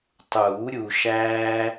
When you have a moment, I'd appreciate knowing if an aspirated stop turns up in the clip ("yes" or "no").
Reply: no